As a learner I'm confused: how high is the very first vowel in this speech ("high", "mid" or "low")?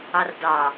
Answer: low